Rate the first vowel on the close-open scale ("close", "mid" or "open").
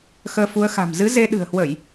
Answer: mid